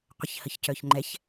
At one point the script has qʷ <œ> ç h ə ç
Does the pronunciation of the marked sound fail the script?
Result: yes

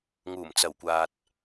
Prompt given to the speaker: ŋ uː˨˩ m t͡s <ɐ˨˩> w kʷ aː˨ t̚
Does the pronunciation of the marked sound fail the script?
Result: no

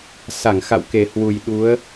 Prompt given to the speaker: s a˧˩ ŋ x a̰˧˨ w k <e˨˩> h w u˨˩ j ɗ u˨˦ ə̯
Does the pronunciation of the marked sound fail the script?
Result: no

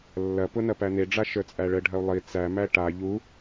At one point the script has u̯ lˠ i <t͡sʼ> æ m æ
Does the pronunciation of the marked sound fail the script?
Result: yes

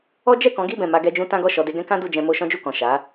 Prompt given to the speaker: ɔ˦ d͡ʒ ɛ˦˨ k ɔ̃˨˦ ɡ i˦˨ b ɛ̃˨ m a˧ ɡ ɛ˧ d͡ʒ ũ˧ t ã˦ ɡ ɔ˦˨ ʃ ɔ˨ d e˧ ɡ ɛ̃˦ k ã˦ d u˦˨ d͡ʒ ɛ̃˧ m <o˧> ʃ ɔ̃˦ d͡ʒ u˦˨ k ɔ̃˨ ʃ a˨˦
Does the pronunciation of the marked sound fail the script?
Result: no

